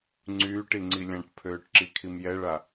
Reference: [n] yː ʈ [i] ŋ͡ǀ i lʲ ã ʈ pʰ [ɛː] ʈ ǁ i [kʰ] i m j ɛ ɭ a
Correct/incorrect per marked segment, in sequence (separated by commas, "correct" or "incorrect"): incorrect, correct, incorrect, correct